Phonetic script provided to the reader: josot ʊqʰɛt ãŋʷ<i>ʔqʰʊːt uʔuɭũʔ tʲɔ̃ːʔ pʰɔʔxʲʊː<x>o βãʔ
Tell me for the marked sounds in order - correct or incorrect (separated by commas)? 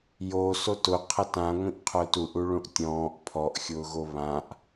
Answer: incorrect, incorrect